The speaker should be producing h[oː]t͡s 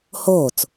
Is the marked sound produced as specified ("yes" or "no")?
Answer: yes